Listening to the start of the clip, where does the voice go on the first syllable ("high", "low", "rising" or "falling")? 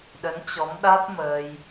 rising